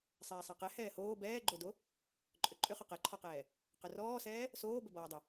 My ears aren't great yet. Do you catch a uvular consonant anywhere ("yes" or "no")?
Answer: yes